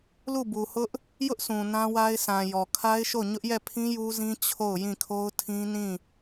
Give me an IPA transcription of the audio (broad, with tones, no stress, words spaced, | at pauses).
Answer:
lu˦˨bu˨hʊ˦ʔ | jʊ˦ʔsũ˨ nã˦wa˦ɪ̯sʰã˨jɔ˨ kʰa˦ɪ̯ʃo˦˨ ɲʊ˦ʔjɛ˦˨pʰĩ˦ ju˦zĩ˦ t͡ɕʰo˦˨ʊ̯jĩ˦˨kʰo˦ʊ̯tʰĩ˦ nĩ˦˨